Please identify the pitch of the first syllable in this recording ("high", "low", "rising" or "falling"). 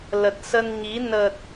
low